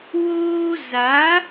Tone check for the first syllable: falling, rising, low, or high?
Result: high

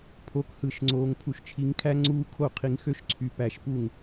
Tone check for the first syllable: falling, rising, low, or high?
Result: rising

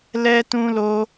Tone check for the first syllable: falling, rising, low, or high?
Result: high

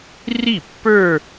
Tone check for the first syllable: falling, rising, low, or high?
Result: falling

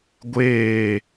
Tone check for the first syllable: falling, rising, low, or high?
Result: falling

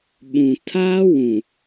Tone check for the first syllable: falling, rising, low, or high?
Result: low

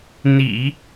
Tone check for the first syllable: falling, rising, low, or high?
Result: low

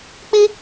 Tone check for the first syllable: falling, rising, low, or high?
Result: high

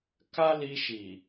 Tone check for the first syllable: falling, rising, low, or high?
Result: high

